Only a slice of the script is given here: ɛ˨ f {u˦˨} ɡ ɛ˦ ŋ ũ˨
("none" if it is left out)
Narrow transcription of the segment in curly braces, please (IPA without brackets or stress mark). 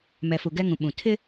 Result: u˨